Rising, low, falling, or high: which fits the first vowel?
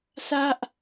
high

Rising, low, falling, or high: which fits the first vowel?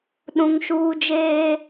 high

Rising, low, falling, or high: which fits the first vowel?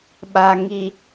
low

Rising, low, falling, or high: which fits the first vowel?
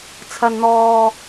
low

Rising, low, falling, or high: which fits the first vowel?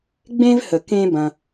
high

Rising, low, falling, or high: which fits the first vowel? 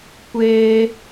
high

